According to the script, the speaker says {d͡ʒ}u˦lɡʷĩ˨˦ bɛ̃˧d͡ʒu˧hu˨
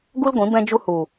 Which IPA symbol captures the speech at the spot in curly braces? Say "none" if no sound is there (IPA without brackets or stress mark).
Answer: ɡ